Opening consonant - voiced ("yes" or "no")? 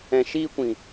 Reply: no